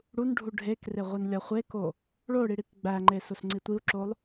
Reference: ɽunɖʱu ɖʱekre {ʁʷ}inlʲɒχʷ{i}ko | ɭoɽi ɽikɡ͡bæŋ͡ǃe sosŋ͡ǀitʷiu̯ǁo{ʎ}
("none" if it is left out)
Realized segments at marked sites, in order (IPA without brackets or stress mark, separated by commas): ʁʷ, e, lˠ